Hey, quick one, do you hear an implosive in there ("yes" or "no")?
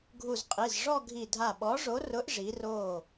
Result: yes